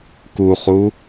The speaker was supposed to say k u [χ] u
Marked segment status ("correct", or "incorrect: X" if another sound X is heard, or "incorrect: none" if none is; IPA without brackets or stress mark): correct